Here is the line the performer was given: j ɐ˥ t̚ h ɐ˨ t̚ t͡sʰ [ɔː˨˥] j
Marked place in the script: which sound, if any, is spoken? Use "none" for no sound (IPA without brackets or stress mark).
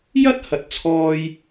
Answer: ɔː˧